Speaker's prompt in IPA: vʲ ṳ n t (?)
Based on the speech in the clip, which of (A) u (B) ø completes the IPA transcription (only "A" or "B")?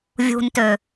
B